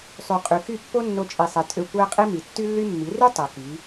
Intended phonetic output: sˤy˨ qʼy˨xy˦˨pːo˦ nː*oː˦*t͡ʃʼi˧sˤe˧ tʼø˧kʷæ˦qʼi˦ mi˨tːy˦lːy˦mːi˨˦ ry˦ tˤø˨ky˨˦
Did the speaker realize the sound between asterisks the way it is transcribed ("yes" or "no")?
no